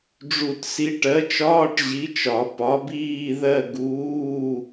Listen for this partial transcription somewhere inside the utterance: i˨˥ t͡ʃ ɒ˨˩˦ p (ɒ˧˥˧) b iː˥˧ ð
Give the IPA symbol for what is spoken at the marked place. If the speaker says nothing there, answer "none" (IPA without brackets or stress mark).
ɒ˨˥